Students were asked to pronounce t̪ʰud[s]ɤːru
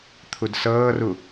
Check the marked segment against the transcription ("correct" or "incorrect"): correct